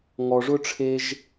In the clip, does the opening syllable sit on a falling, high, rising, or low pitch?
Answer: low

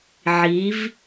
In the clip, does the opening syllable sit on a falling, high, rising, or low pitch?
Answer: rising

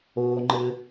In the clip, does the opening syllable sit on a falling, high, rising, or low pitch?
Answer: low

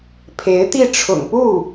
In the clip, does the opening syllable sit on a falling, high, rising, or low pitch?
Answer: rising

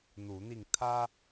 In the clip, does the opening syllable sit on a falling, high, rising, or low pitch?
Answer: rising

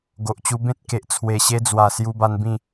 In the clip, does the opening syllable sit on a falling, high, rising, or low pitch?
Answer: low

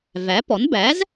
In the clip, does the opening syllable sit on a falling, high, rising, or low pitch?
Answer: rising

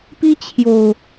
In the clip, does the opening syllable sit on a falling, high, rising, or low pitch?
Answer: high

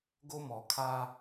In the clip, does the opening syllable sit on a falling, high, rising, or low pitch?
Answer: high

